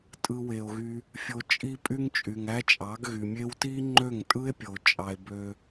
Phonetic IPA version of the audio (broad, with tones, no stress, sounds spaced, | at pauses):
tʼ ɯ˦ w e˧ o̯ ɣ y˦ | fʲ o˧ t͡ʃʼ i˦ pʼ y˦ ŋ t͡ʃʼ y˨ ŋ æ˦ t͡ʃʼ ɑ˨˦ ɡ ɣ y˨ mʲ e˦ w t i˦ ŋ͡ǃ ø˦˨ ŋ tʼ ɯ˦ e̯ pʲ o˨ t͡ʃʼ ɑ˧ e̯ b ø˦